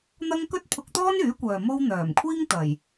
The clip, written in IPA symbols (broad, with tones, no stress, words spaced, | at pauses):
n̪ɐ˥ŋ kɵ˥t̚pʰʊ˧k̚t̪ɔː˥n yː˨˥kʷœː˨ mo˥w n̪œː˨˩m kʷʰiː˥ŋ t̪ɐ˨˩j